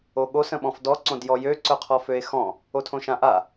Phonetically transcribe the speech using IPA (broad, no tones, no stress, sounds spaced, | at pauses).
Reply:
o ɠ o s ə̃ ɓ ɔ̃ f d ɔ ǀ õ d j ɔ j ø ǀ œ qʰ ɔ f ø e̯ x ɔ̃ | o tʰ õ ʃ ã ʔ a